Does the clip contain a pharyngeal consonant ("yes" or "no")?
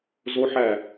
yes